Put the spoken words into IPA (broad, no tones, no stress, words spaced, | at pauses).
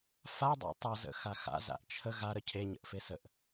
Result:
fadˤa̰ tˤʌzə̰ xaxa̰ za̰ʔt͡ʃʰə ɣa ɾəcʰeɲə̰ʔ fesəʔ